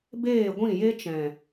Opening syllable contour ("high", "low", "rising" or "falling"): falling